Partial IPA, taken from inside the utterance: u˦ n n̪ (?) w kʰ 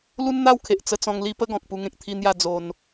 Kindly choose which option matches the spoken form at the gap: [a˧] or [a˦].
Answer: a˦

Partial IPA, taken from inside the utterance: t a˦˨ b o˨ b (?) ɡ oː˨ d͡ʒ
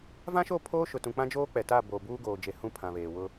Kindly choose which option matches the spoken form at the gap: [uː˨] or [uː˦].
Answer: uː˦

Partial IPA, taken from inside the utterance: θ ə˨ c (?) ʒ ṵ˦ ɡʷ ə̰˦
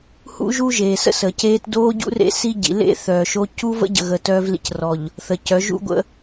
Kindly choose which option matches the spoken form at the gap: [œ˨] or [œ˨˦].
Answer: œ˨˦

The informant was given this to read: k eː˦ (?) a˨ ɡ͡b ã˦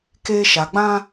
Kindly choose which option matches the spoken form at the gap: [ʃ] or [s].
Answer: ʃ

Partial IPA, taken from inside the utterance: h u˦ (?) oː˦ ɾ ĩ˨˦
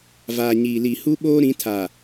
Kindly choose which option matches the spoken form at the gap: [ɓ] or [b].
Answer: ɓ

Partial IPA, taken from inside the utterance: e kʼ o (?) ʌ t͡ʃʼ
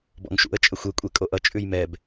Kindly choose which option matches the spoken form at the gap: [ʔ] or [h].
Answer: ʔ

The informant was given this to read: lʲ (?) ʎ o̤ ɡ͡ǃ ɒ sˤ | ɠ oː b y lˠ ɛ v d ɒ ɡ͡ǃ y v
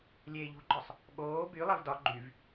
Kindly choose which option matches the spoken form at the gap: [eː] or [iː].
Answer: eː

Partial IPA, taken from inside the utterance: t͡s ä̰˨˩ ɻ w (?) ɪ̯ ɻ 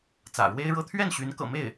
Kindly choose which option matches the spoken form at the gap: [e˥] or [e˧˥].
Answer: e˥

